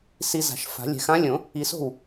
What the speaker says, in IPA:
si˨ za̤˨˩˦ʃfa̤˨˩˦lʲɛ̤˨ xã˧˥lʲõ˨˩˦ | i˨so̤˥˩w

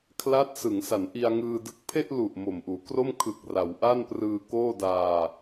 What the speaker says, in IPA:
kʰla˦˥t̚sɯ˩˦ŋsa˩˦n ʔi˧a̯ŋɯː˧dɯ˦˥k̚ pʰe˥˩ʔlu˨˩ʔ mo˨˩mʔuː˩˦kro˥˩m kʰɯ˨˩k̚ ra˩˦wʔa˥˩nprɯː˧ koː˥˩daː˧

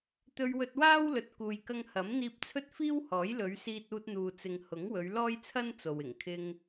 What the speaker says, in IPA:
t̪ɵ˧ɥ wɵ˧t̚waː˥wlɵ˨t̚ kuː˨jkɐ˧ŋhɐ˨˥mn̪iː˧p̚ t͡sʰɵ˥t̚fiː˥whɔː˨˥jlɵ˨˧ɥ siː˧t̚uː˧t̚n̪uː˨t͡sɪ˨ŋ hʊ˨˥ŋwɵ˨˧ɥ lɔː˥jt͡sʰɐ˥n t͡so˨w ɪ˨˩ŋkʰɪ˧ŋ

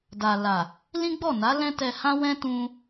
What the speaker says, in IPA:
da˨la˨ | lĩ˦ɡ͡bɔ˦˨na˨˦ lɛ̃˦tɛ˧hã˦ wɛ̃˦tũ˧

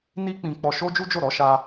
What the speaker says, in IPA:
ni˦k͡pĩ˧ k͡pɔ˧ʃo˦d͡ʒu˦d͡ʒo˦˨ ɾɔ˨˦ʃa˧

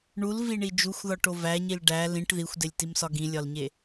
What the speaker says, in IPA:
ɳulviɳi d͡ʒuxʷðɒʈo væɲil ɖæ lĩʈ ðixʷdelʲtimsɒ ɡĩlʲɒlɲe

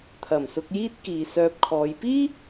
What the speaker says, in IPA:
t̪ʰɐ˨˩m sʊ˧k̚jiː˥t̚ kiː˨ sœː˧p̚kʰɔː˨˧j piː˥

